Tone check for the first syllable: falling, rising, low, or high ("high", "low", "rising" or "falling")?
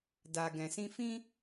low